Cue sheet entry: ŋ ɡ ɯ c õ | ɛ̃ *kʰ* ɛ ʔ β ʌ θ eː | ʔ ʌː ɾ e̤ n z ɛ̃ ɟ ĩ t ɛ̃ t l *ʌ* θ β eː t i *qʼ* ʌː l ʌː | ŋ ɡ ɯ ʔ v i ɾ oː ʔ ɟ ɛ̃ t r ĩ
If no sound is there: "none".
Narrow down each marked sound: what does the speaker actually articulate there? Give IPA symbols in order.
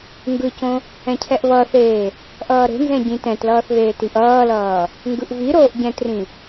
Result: cʰ, ʌː, ʔ

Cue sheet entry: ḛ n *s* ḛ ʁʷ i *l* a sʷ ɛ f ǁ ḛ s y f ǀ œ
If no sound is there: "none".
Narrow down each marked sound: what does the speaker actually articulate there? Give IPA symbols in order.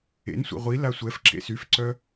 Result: sʷ, l

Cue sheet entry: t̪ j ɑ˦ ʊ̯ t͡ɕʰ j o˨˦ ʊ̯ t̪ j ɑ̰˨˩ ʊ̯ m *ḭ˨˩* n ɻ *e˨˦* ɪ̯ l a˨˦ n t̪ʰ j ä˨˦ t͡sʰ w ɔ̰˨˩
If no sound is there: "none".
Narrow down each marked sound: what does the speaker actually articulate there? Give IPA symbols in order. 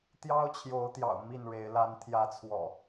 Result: i˥˨, e˨˦

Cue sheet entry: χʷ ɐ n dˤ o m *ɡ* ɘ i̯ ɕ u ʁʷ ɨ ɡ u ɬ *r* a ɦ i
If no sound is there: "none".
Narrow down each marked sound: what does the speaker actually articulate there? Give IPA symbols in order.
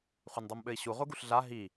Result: ɓ, ɮ

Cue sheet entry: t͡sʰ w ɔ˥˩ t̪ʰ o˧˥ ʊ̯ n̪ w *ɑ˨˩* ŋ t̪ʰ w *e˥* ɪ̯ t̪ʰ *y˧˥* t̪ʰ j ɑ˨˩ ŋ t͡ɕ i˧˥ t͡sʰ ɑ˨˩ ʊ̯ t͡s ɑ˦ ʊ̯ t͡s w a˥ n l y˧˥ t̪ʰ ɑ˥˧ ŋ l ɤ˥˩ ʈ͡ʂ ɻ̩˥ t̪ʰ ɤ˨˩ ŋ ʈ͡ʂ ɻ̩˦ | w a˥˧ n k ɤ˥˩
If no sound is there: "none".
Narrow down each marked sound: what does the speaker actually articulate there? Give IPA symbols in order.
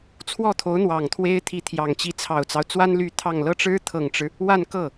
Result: ɑ˨˩, e˥, i˧˥

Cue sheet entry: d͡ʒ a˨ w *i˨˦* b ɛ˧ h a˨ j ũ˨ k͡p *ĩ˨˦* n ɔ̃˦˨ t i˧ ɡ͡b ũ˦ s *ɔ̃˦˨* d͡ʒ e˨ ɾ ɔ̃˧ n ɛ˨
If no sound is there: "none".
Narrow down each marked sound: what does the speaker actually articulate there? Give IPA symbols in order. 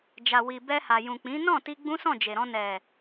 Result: i˨, ĩ˨˦, ɔ̃˦˨

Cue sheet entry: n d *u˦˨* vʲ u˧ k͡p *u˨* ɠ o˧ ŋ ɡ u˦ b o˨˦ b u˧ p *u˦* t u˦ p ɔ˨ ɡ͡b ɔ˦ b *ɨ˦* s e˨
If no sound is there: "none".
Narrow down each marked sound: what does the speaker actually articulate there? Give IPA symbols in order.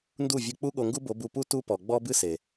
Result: u˦˨, u˦, u˦, ɨ˦

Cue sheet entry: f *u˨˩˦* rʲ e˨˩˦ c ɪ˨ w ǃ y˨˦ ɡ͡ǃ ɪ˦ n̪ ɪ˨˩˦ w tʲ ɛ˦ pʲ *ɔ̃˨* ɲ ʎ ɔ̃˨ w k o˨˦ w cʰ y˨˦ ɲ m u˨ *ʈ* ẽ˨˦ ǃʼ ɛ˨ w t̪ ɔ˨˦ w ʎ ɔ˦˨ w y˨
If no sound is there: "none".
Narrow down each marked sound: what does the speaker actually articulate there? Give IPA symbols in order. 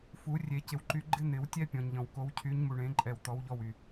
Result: u˨˩˦, ɔ̃˨, ɳ

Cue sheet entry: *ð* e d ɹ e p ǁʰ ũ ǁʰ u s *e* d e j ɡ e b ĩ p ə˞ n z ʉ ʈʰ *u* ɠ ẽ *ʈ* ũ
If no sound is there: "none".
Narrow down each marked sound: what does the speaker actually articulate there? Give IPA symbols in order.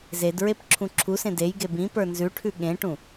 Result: z, ẽ, ʉ, ʈ

